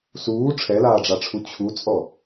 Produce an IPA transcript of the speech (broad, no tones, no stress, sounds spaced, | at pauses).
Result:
s uː ʈ͡ʂʰ ɛ l aː ɖ͡ʐ a ʈ͡ʂʰ u t͡ɕʰ u t͡sʼ ɔ